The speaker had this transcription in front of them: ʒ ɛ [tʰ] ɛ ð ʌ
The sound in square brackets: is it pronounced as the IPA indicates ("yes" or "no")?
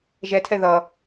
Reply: yes